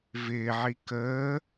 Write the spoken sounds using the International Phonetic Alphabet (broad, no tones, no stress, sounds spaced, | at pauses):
v ɪː ʕ i k əː